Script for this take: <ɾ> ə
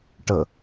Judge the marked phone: incorrect: ʈ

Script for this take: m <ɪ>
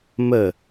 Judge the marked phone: incorrect: ə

